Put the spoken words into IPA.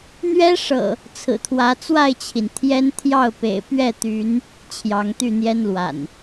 n̪ ɥ ɛ˦ ʂ ɤ̰˨˩ | t͡sʰ ɹ̩˨˩ t̪ʰ w ä˨˦ t͡s w a˥˨ ɪ̯ t͡ɕʰ i˩ n t̪ʰ j ɛ˦ n t̪ʰ j ɑ˥˨ ʊ̯ p ḛ˨˩ ɪ̯ p ɥ ɛ˥˨ t̪ y˨˦ n | t͡ɕʰ j ɑ˨˦ ŋ t̪ y˥˨ n̪ j ɛ˦ n l w a̰˨˩ n

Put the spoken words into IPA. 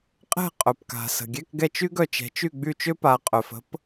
qʼ ɛ̤˦˨ qʼ œ˩ p k a̤˩ s ə̤˩ ɡʲ ɛ˧˥˧ k ɡ ɛ˦˨ t͡ʃ y˥ ɡ œ˦˨ t͡ʃ ɛ̤˨˦ t͡ʃ y˦˨ ɡ͡b y˦˨ t͡ʃ ø˥ p a˨˦ qʼ œ˩ f ə̤˨˦ p

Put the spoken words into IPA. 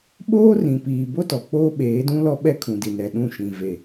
ɓ oː˦ r ĩ˨ p iː˨ b o˦ t ɔ˨ k͡p oː˦ ɓ eː˨˦ d ũ˦ l ɔ˦ ɓ ɛ˦ kʰ ũ˨ d i˨ n ɛ˨ ɗ ũ˦˨ ʃ ĩ˨ v e˨

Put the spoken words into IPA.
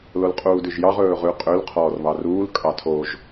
l o l qʼ uː d ʉ ʒ j ɑ ʁ ɵː ʁ ʉ qʼ ø l qʰ ɔː r β ɑ r uː l kʼ ɑ tʰ o ʒ

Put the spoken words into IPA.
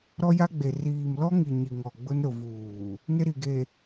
ɾ ɔ˦ j a˦ ɡ͡b e˨ r iː˨ m l ɔ˦ ŋ i˨ ɲ i˨ ŋ ɔ˨ ɡ͡b ʊ˦ n ɾ ʊ˨ v uː˨ | n ɪ˦ ɾ i˨ ɡ e˨

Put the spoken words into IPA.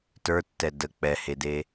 t ə˞ tː ɛ d ə k͡p ɛ h e d e

